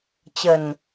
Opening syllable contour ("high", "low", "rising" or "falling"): low